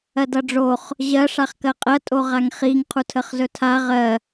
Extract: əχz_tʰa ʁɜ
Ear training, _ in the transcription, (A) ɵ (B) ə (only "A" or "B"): A